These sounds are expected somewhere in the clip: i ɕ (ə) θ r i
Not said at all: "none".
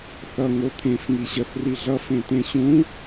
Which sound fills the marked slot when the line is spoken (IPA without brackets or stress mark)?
ə